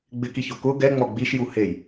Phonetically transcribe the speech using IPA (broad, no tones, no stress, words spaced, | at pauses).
ɡ͡bɪkiço kʊ ɡɛŋ͡mɔ ɡ͡biʃju hej